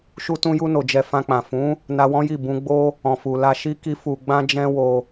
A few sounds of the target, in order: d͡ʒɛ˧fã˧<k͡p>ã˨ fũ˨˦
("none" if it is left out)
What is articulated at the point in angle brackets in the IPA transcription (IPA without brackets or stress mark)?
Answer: k͡p